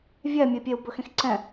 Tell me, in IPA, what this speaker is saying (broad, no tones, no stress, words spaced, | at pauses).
vʲɛ mʲəi̯pʲeu̯ bɵxẽxǀɛ̃